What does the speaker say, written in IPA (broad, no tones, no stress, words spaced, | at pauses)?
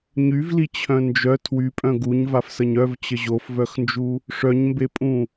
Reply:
ɲyvlit͡ɕʰœ̃ nd͡ʒœ tʰwypʼœ̃ ɡuɲvafsəɲ œvt͡ɕə ʑofvœxnd͡ʒu | ʂœɲmbepʼũ